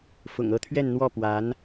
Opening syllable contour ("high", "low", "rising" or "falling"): low